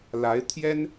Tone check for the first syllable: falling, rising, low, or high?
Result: rising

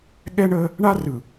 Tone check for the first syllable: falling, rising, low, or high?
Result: high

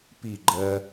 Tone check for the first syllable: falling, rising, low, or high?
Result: falling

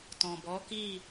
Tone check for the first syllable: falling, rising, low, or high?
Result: low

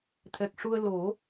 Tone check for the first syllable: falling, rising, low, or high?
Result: low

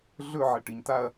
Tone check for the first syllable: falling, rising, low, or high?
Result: falling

